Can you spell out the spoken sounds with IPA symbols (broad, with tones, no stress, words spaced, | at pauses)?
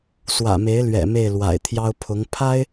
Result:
swä̰˨˩me˧˥ɪ̯lɥɛ̰˨˩ me˥˩ɪ̯lwa̰˨˩ɪ̯t̪ʰjɑ˥ʊ̯ pʰʊ˧˥ŋ pʰa˥ɪ̯